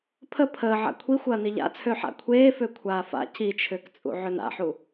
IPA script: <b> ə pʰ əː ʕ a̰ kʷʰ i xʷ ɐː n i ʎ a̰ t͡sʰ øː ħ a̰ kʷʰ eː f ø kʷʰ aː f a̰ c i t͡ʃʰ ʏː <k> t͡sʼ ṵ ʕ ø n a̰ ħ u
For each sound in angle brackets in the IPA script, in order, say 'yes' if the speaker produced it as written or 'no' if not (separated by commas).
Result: no, yes